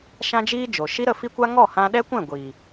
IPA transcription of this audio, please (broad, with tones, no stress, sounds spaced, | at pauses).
ʃ ã˦ d͡ʒ iː˦ d͡ʒ o˨ ʃ i˦ ɾ ə˦˨ f i˦ kʷ a˦ ŋ ɔ˦˨ h ã˧ ɗ ɛ˦ kʷ ɛ̃˦˨ ɡʷ iː˨